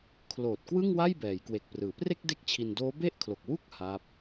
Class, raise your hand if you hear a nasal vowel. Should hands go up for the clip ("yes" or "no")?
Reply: no